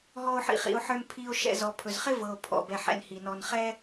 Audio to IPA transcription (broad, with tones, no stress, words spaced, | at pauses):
ɦɔ˨o̯ħḭ˨χḭ˩o̯ħə˞˨n pʰi˨o̯ ʃɛ̰˨zɔ˩pʰɵ˩zχɪ˥ vɤ˩o̯ pʰɔ̰˨bɛ˨ ħɛ̰˩n hi˩nɔ˨n χɛ˥